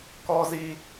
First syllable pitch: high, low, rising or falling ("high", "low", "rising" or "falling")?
high